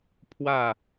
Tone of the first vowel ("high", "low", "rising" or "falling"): falling